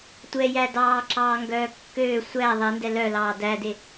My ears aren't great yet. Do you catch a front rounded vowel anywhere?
yes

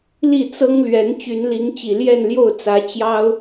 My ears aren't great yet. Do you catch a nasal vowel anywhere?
no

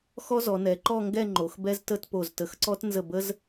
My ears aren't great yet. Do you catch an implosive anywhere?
no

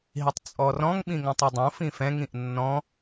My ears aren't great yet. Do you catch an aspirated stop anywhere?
no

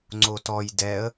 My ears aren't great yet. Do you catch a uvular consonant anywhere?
no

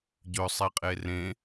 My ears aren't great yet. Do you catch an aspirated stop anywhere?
no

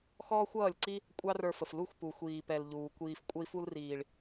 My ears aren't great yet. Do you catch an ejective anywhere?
yes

